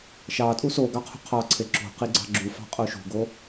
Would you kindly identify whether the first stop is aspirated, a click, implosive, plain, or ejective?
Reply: ejective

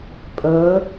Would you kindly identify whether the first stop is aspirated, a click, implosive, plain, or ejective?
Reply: ejective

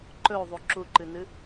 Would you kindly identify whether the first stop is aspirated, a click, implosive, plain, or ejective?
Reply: click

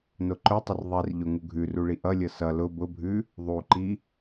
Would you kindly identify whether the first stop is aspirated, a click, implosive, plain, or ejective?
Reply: click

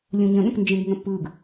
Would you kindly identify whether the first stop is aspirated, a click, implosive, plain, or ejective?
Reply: implosive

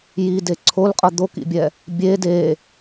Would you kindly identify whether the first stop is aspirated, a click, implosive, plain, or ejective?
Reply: plain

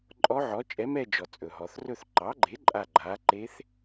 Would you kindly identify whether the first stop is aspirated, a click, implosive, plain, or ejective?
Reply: click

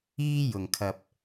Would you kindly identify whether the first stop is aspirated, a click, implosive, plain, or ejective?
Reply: aspirated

